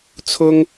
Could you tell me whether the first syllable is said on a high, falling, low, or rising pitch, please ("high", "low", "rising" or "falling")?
high